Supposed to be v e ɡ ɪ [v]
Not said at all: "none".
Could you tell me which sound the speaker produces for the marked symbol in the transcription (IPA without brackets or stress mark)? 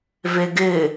none